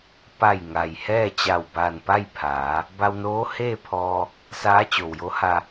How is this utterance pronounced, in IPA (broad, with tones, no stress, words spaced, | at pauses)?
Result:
pa˧˩jŋa˩j hɛː˥˨ t͡ɕa˧˩wba˧˩npa˥˨jpʰaː˩˧ | ba˧wnoː˧˥heː˥˨ pʰɔː˧ | saː˧˥t͡ɕo˩wjo˧˥ha˧